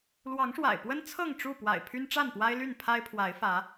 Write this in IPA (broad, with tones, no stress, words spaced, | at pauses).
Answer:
lwɑ˨˦ŋʂwa̰˨˩ɪ̯pwə˦n t͡sʰɤ˥˨ŋʈ͡ʂu˥˨pwa̰˨˩ɪ̯ pʰy˦nʈ͡ʂa˥˨npwa˦ɪ̯ly˥˨n pʰa˦ɪ̯pʰwa˨˦ɪ̯fä˨˦